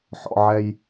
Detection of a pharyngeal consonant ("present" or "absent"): present